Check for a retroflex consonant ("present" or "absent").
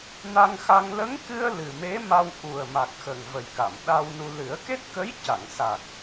absent